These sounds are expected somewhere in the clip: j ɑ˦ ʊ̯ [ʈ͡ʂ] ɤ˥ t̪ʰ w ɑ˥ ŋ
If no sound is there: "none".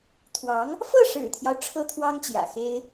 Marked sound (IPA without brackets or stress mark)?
ʈ͡ʂʰ